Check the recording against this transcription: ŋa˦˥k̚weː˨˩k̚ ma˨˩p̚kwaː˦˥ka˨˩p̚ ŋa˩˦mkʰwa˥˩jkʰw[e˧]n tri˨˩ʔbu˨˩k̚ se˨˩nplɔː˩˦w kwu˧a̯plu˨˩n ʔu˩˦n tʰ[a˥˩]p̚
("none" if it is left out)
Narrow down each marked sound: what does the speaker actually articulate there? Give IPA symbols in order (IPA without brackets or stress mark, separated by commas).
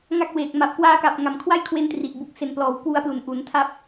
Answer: e˧, a˥˩